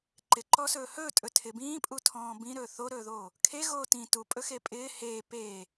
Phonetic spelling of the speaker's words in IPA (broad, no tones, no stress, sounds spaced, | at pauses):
ǃ ɪ ǃ ɔ s ɵː h ɵː tʼ ɵ tʰ ɪ b ĩː pʼ u tʰ ɔ̃ː b ĩ ɾ ɵː θ o ɾ ɵː ð oː | kʰ e ɣ oː t ĩ t u pʼ ɵ x e pʼ ɪː h eː p eː